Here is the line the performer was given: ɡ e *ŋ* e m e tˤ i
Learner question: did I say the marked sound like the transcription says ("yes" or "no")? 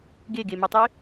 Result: no